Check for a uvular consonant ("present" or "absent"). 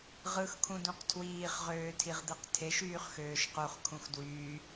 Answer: present